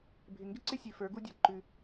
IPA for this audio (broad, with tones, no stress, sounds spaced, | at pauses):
bʱ ɪ˨ ŋ ɡ ɪ˦ ǀ ɪ˦ sʲ ʉ˨ f ə˞˨˦ ɡ u˦ dʲ a˧ ǃ ʉ˧